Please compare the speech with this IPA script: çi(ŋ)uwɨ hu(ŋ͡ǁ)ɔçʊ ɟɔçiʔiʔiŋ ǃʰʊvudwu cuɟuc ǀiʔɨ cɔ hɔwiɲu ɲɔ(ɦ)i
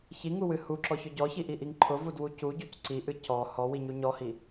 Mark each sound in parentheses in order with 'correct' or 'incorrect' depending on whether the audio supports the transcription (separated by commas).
correct, incorrect, incorrect